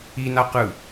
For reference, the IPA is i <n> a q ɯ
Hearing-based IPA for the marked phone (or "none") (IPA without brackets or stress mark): n